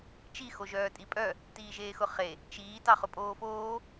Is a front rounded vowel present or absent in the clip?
present